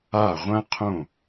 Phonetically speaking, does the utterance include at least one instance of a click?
no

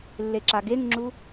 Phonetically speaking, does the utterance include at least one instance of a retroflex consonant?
no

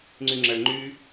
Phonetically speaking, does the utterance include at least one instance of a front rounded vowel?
yes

